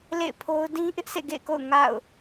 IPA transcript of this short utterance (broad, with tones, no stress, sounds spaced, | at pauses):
l ḛ˦˨ ɪ̯ pʰ o˦ ʊ̯ d ĩ˦ ʔ ɪ˦ ʔ sʰ ḛ˦˨ ɡ ḛ˦˨ ɪ̯ k o̰˦˨ ʊ̯ ŋ a̰˦˨ ʊ̯